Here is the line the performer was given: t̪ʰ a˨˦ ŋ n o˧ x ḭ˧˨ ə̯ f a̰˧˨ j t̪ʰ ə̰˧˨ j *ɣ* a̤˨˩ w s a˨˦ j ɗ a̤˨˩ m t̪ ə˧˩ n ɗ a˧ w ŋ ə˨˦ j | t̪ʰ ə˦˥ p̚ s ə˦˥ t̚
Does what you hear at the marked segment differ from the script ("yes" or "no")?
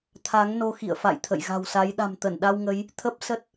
no